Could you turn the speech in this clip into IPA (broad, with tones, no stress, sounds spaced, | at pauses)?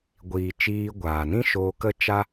ɡʷ iː˨ t͡ʃ iː˧ ɡʷ aː˨ n ĩ˦ ʃ oː˧ k ə˦ t͡ʃ a˦